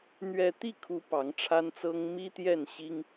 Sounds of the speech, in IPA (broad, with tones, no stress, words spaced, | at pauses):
n̪ɥɛ˥˧ t̪i˥˩kʰu˧˥ pɑ˧˥ŋʈ͡ʂʰa˥nt͡sɤ˥ŋ mi˥ t̪jɛ˥˩n ɕi˥ŋ